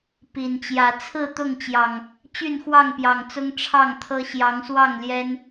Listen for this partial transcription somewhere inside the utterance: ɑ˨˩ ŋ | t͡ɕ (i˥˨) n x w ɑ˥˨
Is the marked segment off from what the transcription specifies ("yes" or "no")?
yes